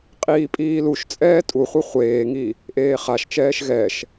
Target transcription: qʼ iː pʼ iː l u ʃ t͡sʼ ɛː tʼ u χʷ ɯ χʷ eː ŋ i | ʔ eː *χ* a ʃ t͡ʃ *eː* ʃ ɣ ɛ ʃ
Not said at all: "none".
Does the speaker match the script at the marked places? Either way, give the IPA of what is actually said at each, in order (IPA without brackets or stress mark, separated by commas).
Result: χ, ɛː